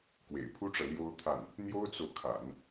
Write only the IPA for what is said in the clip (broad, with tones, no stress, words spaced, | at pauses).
kwḛ˨˩ɪ̯pʰu˥ʈ͡ʂɤ˨ ljo˥ʊ̯t̪ʰa˥˩n | n̪jo˥ʊ̯t͡so˨ʊ̯kʰa̰˨˩˦n